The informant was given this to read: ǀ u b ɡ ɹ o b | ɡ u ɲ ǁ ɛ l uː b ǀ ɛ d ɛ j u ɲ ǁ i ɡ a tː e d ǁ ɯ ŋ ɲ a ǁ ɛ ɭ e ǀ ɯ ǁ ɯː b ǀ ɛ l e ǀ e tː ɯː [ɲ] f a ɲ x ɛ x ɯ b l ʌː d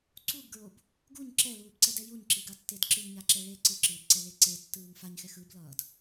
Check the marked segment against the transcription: incorrect: ŋ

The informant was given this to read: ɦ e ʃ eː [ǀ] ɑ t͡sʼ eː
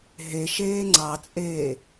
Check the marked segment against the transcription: incorrect: ŋ͡ǀ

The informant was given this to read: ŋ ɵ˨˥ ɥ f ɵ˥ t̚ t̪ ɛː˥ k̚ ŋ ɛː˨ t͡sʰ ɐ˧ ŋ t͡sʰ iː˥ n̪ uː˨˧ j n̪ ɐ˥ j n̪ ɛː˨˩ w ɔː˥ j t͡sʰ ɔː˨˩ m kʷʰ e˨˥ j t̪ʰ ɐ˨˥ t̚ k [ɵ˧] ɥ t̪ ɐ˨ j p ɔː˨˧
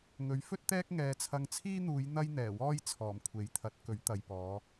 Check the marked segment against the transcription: incorrect: ɵ˨˥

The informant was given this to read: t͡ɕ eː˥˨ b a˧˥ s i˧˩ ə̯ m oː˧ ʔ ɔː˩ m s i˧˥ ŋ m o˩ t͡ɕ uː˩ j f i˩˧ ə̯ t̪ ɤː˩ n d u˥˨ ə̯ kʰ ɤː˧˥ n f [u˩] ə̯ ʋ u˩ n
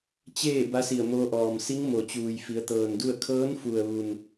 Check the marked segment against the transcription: correct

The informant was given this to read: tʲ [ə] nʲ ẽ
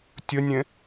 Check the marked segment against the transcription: correct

